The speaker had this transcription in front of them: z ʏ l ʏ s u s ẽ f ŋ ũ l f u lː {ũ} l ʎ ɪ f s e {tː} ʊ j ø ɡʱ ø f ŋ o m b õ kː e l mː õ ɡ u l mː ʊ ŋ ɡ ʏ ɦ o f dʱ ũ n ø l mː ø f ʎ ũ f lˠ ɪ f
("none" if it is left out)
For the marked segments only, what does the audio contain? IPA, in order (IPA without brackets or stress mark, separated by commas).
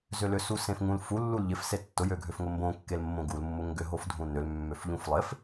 u, tː